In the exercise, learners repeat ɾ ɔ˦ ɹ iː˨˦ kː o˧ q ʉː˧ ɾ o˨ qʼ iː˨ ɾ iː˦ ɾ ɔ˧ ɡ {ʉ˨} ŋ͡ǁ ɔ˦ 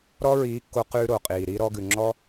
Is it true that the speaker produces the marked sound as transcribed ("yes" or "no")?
yes